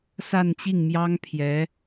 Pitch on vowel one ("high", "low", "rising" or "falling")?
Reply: falling